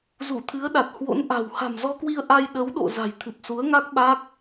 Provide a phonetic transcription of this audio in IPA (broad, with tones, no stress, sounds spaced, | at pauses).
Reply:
z u˧˩ t̪ʰ ɨ˨˦ ə̯ ɗ a˨˩ t̚ h w o̰˧˥ n ʔ a̤˨˩ w h a̤˨˩ m z ɔ˧ k w i˧ ə̯ ʔ a˧ j ɗ ə˨˦ w ɗ o̰˧˨ z a̤˨˩ j t̪ʰ ɨ˨˩ p̚ s u˨˦ ə̯ ŋ a˦˥ k̚ ɓ a˦˥ k̚